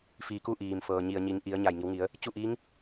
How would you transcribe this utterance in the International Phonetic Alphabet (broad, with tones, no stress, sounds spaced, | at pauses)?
f iː˩˧ k u˧ ʔ iː˩ m f ɤː˩ ɲ i˩ ə̯ ɲ i˩˧ ŋ ʔ i˩˧ ə̯ ɲ a˧˩ j ŋ i˩˧ w ŋ i˩˧ ə̯ | t͡ɕ u˥˨ ʔ iː˧˥ ŋ